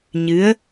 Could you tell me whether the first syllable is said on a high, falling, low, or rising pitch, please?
rising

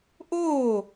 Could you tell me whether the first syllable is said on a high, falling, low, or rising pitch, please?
falling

